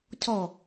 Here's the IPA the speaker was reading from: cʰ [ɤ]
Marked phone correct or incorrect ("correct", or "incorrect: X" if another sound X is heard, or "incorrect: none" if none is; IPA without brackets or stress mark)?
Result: incorrect: ɔ